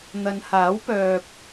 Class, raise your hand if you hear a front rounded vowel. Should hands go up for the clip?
yes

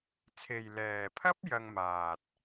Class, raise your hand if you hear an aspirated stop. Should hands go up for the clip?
yes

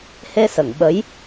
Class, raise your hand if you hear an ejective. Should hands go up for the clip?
no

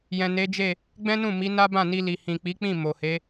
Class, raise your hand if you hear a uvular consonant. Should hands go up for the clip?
no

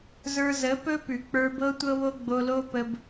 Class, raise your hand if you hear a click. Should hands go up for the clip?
no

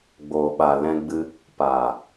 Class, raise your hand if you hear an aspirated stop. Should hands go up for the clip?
no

